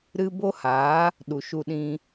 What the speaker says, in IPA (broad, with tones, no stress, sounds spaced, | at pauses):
ɾ ɨ˧ b o˦ h a˨˦ | ɗ u˨ ʃ u˧ ɗ ĩ˧